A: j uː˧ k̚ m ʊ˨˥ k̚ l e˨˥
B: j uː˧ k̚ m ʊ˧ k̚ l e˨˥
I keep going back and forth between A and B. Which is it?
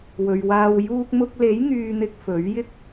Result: B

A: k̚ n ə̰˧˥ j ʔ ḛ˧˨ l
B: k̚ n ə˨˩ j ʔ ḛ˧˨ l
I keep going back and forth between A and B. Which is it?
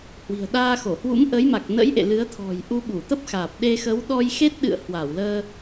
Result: A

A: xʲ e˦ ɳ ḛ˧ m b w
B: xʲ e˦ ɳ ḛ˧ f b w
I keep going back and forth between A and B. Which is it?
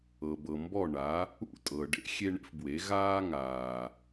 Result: B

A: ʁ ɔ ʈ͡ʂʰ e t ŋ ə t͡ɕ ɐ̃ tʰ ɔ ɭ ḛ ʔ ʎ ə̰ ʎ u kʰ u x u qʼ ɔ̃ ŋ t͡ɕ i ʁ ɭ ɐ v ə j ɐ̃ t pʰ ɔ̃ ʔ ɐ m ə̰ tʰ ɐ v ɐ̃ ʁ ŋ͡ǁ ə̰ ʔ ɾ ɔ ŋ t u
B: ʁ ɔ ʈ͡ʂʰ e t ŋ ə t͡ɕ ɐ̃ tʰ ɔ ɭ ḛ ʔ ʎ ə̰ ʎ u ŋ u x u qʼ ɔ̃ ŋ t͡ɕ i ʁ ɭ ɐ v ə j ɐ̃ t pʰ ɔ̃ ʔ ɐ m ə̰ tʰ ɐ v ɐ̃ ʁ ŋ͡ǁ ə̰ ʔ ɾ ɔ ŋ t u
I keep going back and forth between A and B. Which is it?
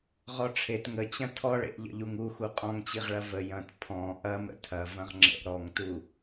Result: B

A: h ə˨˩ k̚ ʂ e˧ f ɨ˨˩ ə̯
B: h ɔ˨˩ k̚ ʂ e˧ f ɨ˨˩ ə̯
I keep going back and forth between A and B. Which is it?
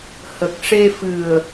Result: A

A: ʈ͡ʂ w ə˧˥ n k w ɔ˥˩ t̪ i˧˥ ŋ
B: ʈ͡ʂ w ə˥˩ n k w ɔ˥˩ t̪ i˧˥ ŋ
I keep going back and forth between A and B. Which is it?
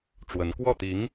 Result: A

